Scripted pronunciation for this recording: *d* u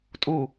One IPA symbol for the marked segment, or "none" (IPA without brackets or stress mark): tʼ